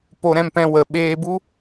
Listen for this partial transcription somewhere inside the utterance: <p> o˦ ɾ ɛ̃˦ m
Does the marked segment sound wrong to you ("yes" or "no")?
no